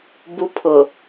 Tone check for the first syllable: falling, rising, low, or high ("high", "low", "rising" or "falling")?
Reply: high